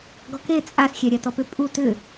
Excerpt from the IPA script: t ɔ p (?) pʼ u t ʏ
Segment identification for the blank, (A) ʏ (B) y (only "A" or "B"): A